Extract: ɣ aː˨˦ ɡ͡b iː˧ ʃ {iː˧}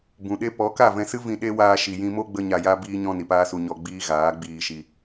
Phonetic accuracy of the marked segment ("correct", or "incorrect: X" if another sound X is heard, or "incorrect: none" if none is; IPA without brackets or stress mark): incorrect: i˧